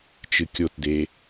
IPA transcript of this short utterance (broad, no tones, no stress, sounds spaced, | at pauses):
t͡ʃ ɨ kʲ o t d e